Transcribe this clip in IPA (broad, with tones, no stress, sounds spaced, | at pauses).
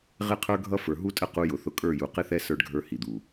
ʁ ɪ˦ qʰ ə˞˦ ɡʱ ʌ˦ f ə˞˨ ɦ u˦ tʼ ə˦ q u˦ j ʊ˨ θ ʊ˦ kʼ ə˞˦˨ j u˨ q ɪ˦ θ ɛ˦ s ə˞˦ ɖ ɡʱ ə˞˦ h i˨ d̪ u˨